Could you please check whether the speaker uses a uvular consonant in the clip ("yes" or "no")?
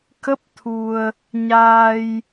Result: no